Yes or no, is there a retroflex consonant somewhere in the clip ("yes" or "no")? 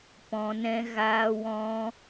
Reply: no